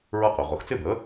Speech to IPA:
ɹ ʌ˥˩ q ʊ˩˧˩ ʁ ʊ˨˥ x t͡s ɪ˥˩ b ə˧˥˧

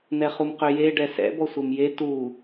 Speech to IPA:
n̪ ɛ χ u m q ø j e ɖ ɛ s ɛ̰ b ɔ sʷ e m j e t u

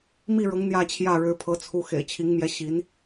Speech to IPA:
m i˥˩ ɻ ɤ˧˥ ŋ n̪ j ä˥˧ t͡ɕʰ j ä˥˩ ɻ ɻ̩˧˥ pʰ ɤ˧˥ t͡sʰ u˧˥ x ḛ˨˩ ɪ̯ t͡ɕʰ i˧˥ ŋ m j ɛ˧˥ ɕ i˧˥ n

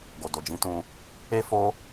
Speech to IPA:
ɡ o˨ d o˨ d͡ʒ ĩ˨˦ t ũ˧ | e˦ f o˦

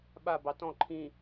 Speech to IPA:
ɓ a b ɑ t ɔ̃ ǃʰ ĩ

